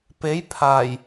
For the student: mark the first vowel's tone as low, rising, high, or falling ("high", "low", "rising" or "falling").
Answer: rising